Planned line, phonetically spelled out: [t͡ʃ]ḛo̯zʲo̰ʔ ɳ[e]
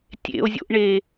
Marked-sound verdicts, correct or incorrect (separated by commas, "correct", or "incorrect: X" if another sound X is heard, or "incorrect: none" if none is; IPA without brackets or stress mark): incorrect: tʲ, correct